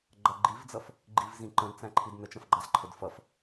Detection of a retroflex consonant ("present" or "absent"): absent